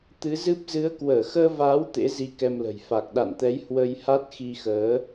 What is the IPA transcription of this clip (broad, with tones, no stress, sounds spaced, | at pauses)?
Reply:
t̪ ɨ˨˦ z ɨ˦˥ p̚ z ɨ˨˦ ə̯ k w əː˧˩ x əː˧ v aː˨˦ w t̪ ḛ˧˥ z i˧ k ɛ˧ m l ə̤˨˩ j f a˨˩ k̚ ɗ a̰˧˨ n t̪ ɛ˨˦ j h w ə˧ j h a˦˥ t̚ x i˧ x əː˨˦